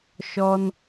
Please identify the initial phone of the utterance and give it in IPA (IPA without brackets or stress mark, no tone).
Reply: ʃ